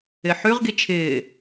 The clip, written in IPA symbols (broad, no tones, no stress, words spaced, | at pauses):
ɪħʉʁ ɡit͡ʃʰɪː